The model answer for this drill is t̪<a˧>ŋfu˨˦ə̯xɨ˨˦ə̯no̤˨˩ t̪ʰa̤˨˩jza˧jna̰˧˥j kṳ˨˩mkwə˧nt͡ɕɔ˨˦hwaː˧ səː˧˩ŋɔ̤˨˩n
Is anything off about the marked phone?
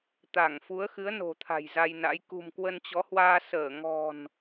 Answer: yes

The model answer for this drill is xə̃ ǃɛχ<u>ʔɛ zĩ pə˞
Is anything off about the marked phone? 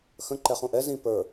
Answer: yes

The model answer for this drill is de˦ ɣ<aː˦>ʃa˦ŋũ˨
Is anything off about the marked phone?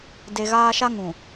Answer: no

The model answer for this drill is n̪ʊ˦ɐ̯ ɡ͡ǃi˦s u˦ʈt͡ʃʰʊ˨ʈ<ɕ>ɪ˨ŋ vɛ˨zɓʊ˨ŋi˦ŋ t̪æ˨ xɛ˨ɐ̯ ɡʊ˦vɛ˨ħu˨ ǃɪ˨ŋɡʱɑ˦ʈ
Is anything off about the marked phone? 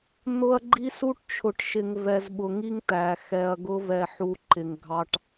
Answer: yes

